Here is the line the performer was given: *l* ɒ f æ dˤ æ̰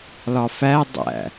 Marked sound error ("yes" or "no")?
no